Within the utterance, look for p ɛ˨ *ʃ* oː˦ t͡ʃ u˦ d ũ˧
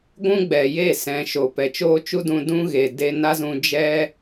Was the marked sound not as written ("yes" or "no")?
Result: yes